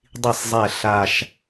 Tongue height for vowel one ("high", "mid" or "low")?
high